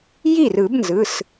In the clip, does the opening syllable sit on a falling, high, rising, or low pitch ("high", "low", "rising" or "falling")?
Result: falling